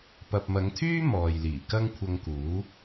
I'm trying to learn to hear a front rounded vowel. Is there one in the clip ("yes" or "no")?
yes